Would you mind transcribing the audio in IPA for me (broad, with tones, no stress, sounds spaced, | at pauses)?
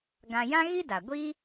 ɡ ã˧ j ã˦ ɣ i˦ d a˨ ɡʷ i˦